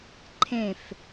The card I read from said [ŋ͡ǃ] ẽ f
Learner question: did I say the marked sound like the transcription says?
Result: no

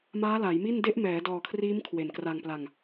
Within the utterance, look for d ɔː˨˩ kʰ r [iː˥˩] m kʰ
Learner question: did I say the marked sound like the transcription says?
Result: no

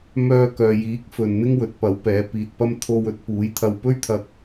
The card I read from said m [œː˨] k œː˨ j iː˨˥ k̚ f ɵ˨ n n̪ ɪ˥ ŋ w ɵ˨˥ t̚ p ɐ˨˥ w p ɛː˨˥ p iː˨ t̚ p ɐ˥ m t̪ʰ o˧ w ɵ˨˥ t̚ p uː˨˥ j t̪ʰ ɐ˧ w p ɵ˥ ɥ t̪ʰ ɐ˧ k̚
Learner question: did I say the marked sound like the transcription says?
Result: no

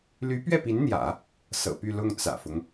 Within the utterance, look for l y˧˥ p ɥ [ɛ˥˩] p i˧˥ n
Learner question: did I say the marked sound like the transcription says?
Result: yes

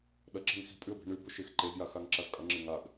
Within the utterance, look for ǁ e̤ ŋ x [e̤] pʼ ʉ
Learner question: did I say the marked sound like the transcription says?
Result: no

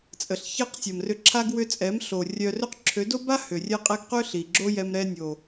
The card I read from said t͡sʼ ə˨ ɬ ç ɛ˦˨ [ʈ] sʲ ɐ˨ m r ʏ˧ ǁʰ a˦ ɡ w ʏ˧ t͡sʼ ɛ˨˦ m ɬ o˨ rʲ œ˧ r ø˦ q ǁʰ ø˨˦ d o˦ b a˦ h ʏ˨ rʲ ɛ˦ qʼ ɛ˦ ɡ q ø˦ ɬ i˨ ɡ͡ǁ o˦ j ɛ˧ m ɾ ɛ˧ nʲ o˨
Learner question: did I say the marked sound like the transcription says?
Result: no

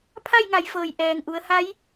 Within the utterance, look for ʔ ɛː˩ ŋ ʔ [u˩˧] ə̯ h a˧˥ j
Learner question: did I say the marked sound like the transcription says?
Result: yes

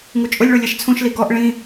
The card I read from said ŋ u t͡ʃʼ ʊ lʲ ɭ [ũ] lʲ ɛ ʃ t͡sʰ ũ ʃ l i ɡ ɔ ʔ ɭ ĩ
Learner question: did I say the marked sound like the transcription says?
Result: no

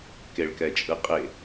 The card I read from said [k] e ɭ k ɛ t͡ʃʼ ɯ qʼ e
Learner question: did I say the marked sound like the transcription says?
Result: yes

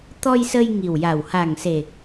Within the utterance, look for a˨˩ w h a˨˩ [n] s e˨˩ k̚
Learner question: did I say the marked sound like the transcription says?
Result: no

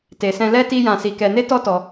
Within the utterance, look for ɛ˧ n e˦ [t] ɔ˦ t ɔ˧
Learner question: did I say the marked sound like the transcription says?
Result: yes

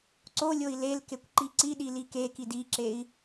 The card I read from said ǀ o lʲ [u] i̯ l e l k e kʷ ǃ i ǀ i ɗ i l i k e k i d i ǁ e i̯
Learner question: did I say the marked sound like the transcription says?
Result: no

